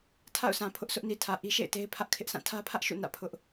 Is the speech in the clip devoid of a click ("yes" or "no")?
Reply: yes